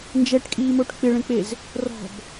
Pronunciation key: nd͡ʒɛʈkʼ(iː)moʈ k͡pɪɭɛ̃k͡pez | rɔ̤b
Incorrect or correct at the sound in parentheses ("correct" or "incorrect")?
correct